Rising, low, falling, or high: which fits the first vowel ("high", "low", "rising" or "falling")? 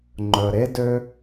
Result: low